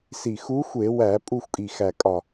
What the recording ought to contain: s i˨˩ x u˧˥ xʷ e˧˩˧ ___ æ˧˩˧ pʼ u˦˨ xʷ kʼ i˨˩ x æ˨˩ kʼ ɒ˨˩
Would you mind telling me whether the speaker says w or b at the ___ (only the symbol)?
w